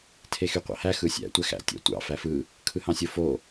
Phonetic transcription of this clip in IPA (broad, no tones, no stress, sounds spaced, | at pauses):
tʰ e x y qʷ ɑ̰ h æ x ɯ sʲ æ̰ tʷ æ x æ̰ tʲ æ̰ tʷ ɑ̰ f æ f ɯ | kʰ ɯ h ɑ̃ sʲ o f o